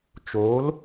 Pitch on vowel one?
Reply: rising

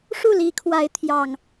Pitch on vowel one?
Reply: falling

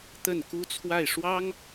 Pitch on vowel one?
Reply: falling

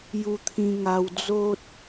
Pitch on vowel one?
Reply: high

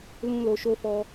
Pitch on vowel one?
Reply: high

